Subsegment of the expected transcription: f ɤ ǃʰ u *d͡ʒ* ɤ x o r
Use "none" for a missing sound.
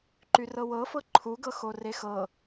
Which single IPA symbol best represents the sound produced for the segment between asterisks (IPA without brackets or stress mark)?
ɡ